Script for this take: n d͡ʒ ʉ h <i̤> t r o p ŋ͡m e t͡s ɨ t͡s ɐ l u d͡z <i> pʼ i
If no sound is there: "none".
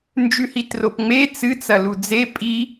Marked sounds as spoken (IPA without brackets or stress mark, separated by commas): i, e